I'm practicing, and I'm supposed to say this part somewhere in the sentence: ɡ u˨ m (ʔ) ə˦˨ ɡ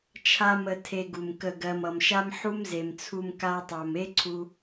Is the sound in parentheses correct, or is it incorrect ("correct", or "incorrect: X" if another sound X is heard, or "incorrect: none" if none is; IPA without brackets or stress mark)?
incorrect: k